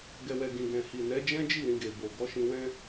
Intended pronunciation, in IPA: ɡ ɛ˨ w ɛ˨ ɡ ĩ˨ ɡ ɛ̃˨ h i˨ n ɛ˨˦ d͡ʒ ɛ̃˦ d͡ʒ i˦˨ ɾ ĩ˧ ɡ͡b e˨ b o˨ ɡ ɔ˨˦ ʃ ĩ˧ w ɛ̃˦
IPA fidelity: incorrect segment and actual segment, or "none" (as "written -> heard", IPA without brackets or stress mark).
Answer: ɡ͡b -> ɡ